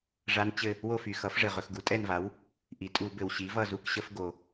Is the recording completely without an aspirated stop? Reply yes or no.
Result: yes